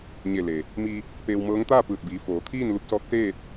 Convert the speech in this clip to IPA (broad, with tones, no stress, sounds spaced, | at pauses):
ɲ e˧˩ l e˩ | m i˧ | p eː˧ w m ɤː˧˥ ŋ t̪ aː˥˨ p ɯː˧˩ t̚ b iː˩˧ f oː˩˧ t̪ʰ iː˥˨ n l u˧ p̚ s ɔː˧˥ k̚ s eː˥˨ t̚